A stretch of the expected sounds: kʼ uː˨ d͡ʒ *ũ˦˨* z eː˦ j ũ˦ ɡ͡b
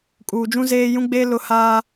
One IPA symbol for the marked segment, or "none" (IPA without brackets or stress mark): ũ˦